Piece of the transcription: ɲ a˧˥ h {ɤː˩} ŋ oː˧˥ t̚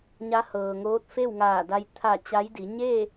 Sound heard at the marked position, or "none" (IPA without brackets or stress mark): ɤː˩